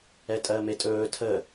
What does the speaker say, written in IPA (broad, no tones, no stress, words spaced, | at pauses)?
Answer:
ɛtʼɜmetʼɵː tʰə